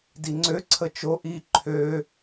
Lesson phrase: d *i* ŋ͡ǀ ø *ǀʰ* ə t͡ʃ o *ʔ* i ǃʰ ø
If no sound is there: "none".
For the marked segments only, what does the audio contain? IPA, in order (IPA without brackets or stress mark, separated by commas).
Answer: i, ǀʰ, ʔ